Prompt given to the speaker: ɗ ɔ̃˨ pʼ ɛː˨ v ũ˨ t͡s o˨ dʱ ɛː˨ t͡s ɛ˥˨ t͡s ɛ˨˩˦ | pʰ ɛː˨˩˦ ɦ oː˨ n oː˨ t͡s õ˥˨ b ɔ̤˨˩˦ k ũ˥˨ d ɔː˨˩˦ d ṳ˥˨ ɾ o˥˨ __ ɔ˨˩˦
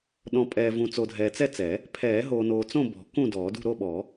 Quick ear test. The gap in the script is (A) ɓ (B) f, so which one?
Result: A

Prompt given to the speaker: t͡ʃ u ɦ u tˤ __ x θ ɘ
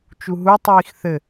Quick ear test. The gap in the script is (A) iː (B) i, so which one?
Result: A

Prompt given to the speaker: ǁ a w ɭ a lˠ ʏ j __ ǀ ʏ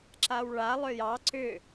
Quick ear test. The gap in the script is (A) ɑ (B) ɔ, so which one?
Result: A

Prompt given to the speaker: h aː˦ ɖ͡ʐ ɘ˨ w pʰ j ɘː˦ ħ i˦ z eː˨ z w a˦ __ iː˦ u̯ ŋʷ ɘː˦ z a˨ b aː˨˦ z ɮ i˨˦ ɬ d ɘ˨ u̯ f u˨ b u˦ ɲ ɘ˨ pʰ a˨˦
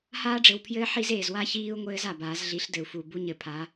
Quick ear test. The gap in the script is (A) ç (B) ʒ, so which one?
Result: A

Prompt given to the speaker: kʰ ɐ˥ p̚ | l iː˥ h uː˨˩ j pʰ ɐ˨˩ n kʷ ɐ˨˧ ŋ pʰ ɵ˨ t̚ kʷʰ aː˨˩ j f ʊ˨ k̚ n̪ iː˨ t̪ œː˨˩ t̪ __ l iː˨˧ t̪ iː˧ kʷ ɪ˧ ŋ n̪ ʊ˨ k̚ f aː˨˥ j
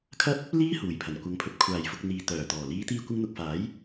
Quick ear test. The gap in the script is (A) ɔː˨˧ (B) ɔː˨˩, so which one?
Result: B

